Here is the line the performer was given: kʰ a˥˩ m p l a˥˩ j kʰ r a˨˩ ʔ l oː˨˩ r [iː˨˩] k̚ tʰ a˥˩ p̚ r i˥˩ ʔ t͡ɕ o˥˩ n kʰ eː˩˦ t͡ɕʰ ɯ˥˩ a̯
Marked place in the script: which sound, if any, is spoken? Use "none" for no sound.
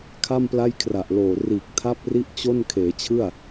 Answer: iː˨˩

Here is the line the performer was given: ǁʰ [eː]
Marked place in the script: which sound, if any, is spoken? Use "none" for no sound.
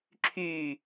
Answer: yː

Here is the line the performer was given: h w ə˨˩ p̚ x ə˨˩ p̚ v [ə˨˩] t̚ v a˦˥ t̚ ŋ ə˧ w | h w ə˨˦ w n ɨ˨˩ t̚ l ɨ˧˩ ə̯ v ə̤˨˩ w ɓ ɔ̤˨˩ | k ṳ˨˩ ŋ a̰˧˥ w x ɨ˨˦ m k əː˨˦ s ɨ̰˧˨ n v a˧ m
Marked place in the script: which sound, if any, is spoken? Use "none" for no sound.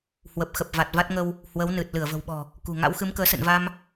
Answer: a˨˩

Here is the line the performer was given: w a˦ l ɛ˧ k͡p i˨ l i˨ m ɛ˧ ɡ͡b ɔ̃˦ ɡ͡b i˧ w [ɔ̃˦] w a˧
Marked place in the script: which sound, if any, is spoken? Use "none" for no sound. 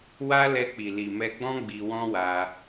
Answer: ɔ̃˦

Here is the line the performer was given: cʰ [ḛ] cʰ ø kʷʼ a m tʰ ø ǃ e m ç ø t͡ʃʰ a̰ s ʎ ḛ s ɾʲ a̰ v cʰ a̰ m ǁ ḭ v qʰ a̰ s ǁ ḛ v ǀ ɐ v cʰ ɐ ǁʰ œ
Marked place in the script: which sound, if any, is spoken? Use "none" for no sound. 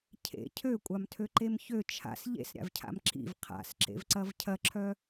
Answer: ḛ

